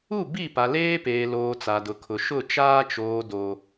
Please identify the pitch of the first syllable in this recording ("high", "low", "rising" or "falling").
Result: falling